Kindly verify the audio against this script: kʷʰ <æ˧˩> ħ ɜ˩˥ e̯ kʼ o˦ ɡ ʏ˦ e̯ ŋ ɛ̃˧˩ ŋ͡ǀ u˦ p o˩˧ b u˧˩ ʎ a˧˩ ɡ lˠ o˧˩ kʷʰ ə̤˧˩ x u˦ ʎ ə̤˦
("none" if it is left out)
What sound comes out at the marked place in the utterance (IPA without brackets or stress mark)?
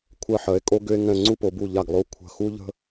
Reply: ɜ˧˩